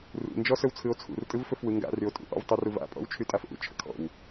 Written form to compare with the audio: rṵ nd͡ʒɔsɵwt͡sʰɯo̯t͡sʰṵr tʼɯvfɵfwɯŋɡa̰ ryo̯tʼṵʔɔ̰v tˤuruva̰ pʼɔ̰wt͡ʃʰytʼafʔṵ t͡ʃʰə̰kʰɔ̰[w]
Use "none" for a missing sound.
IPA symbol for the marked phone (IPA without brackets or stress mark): w